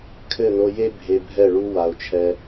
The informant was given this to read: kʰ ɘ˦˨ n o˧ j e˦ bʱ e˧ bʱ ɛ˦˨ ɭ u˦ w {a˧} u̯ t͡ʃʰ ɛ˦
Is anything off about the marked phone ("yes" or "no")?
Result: no